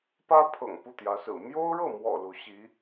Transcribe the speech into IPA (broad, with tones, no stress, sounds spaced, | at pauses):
p ä˥ pʰ ɤ̰˨˩ ŋ p u˥˩ t̪ j ä˧˥ s ɹ̩˨˩ m j o˥ ʊ̯ ɻ ɤ˥˩ m w ɔ̰˨˩ l u˧˥ ɕ i˧˥